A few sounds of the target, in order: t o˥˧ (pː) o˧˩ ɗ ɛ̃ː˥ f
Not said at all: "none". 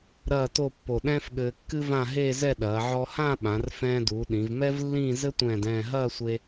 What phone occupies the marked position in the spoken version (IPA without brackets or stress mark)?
pː